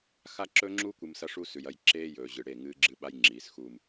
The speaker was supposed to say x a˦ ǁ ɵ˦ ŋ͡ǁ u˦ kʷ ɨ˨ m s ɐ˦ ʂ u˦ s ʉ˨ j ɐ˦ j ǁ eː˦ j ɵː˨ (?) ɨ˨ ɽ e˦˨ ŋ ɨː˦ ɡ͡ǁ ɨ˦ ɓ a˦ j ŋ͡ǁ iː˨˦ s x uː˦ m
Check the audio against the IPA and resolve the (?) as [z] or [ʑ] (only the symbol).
ʑ